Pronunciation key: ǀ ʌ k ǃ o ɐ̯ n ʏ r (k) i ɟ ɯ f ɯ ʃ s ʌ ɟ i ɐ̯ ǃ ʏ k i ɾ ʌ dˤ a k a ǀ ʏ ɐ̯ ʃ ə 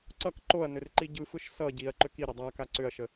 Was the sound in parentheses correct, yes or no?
no